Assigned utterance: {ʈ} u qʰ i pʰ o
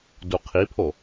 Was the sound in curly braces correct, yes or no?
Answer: no